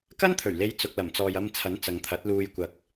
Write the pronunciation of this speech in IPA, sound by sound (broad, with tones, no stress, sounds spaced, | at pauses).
k ɐ˥ n t̪ʰ ɵ˨˩ ɥ l e˧ j t͡s ʊ˨ k̚ l ɐ˨˩ m t͡s ɔː˨ j ɐ˧ m t͡sʰ ɐ˨˥ n t͡s ɐ˨ ŋ t̪ʰ ɐ˨˥ t̚ l uː˧ j kʷ ɐ˨˥ k̚